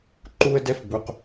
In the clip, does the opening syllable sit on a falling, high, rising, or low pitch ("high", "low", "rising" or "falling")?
high